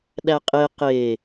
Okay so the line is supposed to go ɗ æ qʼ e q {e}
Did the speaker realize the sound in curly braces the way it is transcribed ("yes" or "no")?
yes